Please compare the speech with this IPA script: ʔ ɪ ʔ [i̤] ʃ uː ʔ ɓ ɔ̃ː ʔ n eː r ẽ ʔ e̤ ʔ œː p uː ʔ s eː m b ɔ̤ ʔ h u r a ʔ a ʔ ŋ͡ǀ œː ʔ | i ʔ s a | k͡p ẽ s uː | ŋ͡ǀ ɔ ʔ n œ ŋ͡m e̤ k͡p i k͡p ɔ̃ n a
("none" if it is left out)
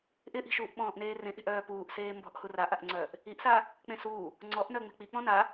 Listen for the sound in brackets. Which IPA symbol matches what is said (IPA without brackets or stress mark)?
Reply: i̤